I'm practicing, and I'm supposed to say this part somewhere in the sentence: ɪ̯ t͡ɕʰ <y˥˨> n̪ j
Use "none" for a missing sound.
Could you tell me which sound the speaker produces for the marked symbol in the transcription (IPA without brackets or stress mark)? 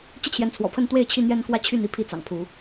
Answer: i˥˨